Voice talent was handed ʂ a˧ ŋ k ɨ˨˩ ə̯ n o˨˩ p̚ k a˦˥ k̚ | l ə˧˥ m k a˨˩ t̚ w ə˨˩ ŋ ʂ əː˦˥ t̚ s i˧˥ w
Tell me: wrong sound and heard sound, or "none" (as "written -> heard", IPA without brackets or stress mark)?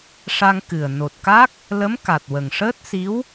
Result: p̚ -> t̚